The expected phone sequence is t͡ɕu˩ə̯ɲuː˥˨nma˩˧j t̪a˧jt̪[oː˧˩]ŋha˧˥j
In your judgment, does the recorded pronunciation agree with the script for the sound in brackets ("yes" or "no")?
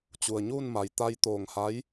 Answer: yes